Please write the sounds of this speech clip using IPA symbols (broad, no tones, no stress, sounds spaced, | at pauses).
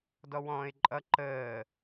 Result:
d ɔ w ɔ̃ː ɪ̯ ǃʼ ʌ ǃ əː